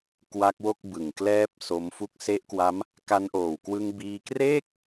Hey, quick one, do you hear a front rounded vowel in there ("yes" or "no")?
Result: no